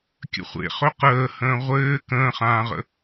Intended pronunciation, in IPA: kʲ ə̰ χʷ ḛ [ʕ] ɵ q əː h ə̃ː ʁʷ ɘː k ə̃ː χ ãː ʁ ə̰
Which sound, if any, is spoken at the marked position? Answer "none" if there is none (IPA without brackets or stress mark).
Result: χ